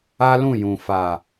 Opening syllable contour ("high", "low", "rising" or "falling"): high